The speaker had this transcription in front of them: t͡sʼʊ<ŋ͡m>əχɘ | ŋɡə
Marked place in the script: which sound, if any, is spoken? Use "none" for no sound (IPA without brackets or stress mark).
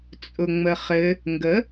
ŋ͡m